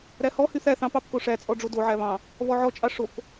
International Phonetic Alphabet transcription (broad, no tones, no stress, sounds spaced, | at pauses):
ɾ æ h ɔ h y θ æ θ ɑ̃ p ɑ p k o ʂ æ t͡sʼ ɔ ɖ͡ʐ o d o ʕ æ β ɑ̃ | β ɔ ʕ ɔ t͡ʃʼ ɑ ʂ o k